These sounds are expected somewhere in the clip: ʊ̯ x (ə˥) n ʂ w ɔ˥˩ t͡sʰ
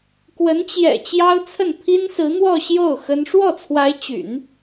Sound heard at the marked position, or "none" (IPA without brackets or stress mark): ə˥